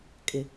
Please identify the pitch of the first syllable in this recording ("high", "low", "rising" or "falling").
low